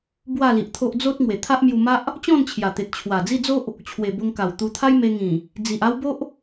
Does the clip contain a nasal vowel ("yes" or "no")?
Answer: yes